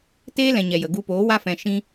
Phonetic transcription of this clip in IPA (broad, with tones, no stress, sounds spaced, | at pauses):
t eː˦ l ɛ̃˨ ɲ ɛ˨ j ə˨ ɡ u˧ p oː˨˦ w a˦ f ɛ̃˧ ʃ ĩ˧